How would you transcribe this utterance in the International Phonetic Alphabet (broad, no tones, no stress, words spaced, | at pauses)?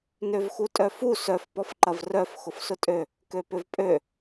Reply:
nøvxutʼœfu sœf pɔfǃɐvrœf xʊfsʊtʼø | køpʏvpʼø